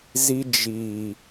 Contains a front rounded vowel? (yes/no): no